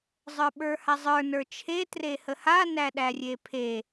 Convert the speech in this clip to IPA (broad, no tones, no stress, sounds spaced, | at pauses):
zˤ ə˞ ɓ ə˞ h a zˤ ə˞ n ə˞ t͡ʃʰ e t r e h ə h a n æ ɗ æ rʲ e pʰ e